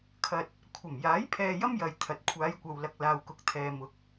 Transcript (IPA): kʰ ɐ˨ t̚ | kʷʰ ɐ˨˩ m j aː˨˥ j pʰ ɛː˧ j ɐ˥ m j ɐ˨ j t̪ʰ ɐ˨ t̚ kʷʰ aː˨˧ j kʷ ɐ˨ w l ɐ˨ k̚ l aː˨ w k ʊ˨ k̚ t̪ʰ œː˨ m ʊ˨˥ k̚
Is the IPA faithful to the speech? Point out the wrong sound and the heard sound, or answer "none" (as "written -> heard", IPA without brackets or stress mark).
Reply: œː˨ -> ɛː˨